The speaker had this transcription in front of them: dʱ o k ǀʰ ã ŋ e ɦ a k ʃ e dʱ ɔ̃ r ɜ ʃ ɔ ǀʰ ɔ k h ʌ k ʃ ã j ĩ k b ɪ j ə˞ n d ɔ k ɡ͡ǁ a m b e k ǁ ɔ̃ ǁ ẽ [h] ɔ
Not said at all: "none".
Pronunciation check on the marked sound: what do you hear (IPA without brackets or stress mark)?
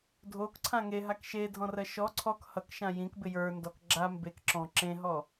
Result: ɦ